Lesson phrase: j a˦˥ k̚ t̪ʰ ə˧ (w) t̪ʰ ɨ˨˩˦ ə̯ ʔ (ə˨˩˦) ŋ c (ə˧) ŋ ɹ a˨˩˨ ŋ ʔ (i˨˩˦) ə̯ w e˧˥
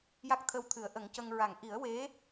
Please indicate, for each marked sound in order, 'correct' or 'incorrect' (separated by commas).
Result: correct, correct, correct, correct